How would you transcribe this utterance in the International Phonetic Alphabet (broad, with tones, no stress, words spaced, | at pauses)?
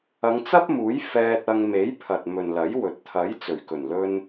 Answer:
ɐ˨˧ŋt͡sɐ˥p̚muː˨˥j fɛː˧t̚ɐ˧ŋ me˨˥j pʰɐ˨t̚mɵ˨n lɐ˨˥jwɵ˨t̚ t̪ʰɐ˨˥j t͡sɵ˨˩ɥkɵ˨˩n lɵ˧n